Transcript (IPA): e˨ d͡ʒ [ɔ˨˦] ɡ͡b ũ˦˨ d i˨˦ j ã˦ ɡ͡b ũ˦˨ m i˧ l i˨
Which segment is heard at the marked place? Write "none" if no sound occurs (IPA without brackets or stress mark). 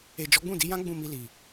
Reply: ɔ˨˦